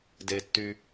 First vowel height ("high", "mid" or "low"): mid